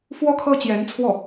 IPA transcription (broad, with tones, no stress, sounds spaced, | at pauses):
f w ɔ˥ kʰ ɤ˥ t͡ɕ j ɛ˧˥ n t͡sʰ w ɔ˥˩